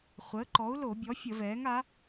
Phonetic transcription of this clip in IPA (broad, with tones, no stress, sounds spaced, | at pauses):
χʷ əː˩˥ ǃ ɔ˩˥ u̯ l o˧˩˧ bʲ ɔ˩˥ fʲ ə˧˩˧ v ɛː˩˥ ŋ a˩˥